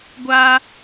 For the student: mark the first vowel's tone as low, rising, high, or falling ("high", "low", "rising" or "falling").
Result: high